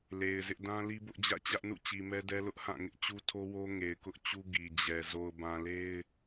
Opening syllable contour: low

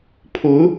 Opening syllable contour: rising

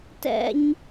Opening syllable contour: high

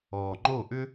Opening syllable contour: low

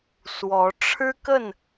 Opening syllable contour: rising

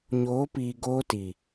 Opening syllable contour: rising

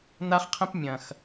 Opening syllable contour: high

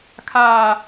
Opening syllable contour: low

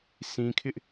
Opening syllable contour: low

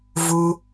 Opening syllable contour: high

